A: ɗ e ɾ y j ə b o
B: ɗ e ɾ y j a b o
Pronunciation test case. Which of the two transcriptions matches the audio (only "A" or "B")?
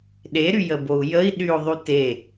A